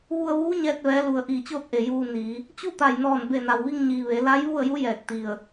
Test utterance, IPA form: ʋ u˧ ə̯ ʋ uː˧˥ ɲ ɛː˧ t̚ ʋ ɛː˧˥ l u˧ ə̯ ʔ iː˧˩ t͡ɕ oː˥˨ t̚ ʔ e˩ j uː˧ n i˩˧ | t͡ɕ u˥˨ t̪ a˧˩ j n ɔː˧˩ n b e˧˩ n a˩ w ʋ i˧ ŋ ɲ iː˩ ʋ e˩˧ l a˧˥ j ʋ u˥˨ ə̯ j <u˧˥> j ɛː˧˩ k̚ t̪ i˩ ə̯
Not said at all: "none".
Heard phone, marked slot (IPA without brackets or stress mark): u˧˥